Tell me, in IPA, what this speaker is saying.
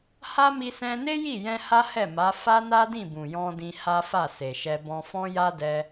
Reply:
ha˦mi˧ sɛ̃˧ne˦ji˦˨jɛ̃˧ ha˦hɛ˦˨ ma˨˦ fa˦na˦dĩ˦˨ bũ˨jɔ̃˧dĩ˧ ha˦fa˦˨se˨ʃɛ˧ bɔ̃˧fɔ̃˦ja˦ dɛ˧

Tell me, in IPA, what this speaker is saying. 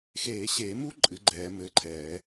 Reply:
xeː˨˩˦ɕeː˨˩˦mu˦˥ ǃʼɨ˨˥ɡ͡ǃɛː˨˩˦mɘː˨˥ǃʰɛː˨˩˦

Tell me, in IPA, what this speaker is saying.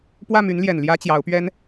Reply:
pwä˥˩my˧˥nljɛ˨˩n ljä˥t͡ɕjɑ˧˥ʊ̯pɥɛ˥n

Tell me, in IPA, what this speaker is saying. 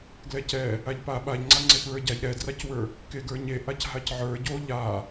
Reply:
ɡlɛcɛ | aʎpa ɓaʎŋ͡ǀa ŋ͡ǀepɹə˞ɟaʎ ɾɛdracwə˞ | keɡə˞ɲeʔac ɦacʕə˞ ɟo ʎa

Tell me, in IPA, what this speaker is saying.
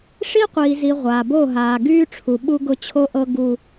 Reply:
ʂi˦qʷiː˨zi˨ ʁʷaː˨bo˦˨ɦaː˨ ɡyː˦ʈ͡ʂʰu˨ ɓu˦ɡʊ˦t͡ɕʰo˦ʔɤ˦ ɡu˦

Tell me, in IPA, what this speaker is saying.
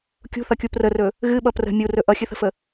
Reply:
kʲṳθʌkʲu prərɵ | ɣɨɓʌ prə̤ mʲurɵ ʔʌxʲɨθə̤fə

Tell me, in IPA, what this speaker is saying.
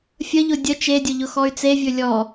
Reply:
fʲəʎʊ dʲə t͡ʃedʲʊ ʎʊxɔy̯t͡sevʲɵ lʲɔ

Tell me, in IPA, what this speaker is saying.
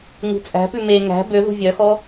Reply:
ŋṳt͡sʼæ̤pʉ me ŋæ̤ bøðṳ vʲœxɔ

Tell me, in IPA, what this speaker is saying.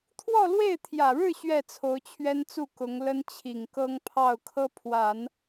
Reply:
t̪ʰwɔ˥˧lwe˥˩ɪ̯t̪ʰjä˨˩ɻɻ̩˥˧ ɕɥɛ˥˩t͡sʰo˧˥ʊ̯t͡ɕʰɥɛ˥nt͡su˥˩ kʊ˧˥ŋ lə˥n t͡ɕʰi˨˩ŋkɤ˥ŋpʰɑ˥˩ʊ̯ kʰɤ˥pʰwa˨˩˦n

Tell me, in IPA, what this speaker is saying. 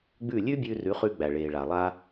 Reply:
ɡ͡bʉ˥˩ lʲʉ˥bʲʉ˧rʉ˩˥χʉ˧ ɡ͡bæ˩ɭeː˩ɭa˩ lˠa˧

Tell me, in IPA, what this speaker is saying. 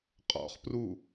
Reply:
qʼɔ̰χpru

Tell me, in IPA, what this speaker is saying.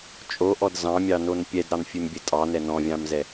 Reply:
t͡ʃʼoʔɔd zɑ̃mʲɑnon pʲɛdɾɑnfʲʉmbʲɘ tʼɑnɛ nɔ̃vʲɑ̃mzɛ

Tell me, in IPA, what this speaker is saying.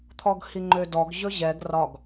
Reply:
t̪ʰɔɡhiŋ͡ǃødɔɡ ʑɵʑɛɡ rɒɡ

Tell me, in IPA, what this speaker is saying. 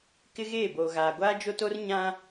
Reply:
kɪ˦ɣeː˦˨boː˨ ɣaː˨ɡʷaː˦ d͡ʒo˦to˦r ɲã˦

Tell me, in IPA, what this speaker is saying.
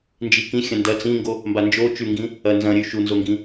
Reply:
nd͡ʒikĩ xʲɐ̃ndɐ t͡sĩŋɡo | mband͡ʒo t͡ʃʉŋɡĩ | ɐ nzɐ̃ɾʲʉ ʃunzoŋɡĩ

